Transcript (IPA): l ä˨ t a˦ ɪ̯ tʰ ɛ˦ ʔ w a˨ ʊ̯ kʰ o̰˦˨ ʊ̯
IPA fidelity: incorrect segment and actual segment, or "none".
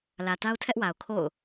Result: ɪ̯ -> ʊ̯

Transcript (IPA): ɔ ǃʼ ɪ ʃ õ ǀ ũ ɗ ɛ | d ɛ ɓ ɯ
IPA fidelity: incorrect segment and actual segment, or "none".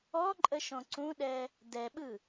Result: ɪ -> ə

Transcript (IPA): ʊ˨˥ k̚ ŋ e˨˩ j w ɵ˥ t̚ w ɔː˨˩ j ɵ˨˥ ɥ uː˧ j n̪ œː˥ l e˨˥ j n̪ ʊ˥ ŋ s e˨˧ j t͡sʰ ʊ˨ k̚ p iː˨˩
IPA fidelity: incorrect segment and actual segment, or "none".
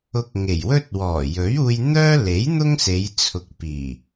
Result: none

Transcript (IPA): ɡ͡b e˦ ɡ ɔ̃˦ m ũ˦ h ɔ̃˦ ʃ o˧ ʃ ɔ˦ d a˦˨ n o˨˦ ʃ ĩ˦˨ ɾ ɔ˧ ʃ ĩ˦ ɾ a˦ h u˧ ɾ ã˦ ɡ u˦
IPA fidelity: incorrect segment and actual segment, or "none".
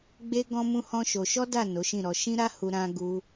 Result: none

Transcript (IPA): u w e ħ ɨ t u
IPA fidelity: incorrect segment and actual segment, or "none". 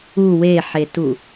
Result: ɨ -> e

